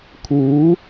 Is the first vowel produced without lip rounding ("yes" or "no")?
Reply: no